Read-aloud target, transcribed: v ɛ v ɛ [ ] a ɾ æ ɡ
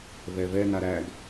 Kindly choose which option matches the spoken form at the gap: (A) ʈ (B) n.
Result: B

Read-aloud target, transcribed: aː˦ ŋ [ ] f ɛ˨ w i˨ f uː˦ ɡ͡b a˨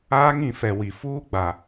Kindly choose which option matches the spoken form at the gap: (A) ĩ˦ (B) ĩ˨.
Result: B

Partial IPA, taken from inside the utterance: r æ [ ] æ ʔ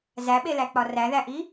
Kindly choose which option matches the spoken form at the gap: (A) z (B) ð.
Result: B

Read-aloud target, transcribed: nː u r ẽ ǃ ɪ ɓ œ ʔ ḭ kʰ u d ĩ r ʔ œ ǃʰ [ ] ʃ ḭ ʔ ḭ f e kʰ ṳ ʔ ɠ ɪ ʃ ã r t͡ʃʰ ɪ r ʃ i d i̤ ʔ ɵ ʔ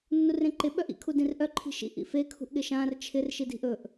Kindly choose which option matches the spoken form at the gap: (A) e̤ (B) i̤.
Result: B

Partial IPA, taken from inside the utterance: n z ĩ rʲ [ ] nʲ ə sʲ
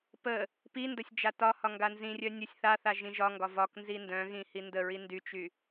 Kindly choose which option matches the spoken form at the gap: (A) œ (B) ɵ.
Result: A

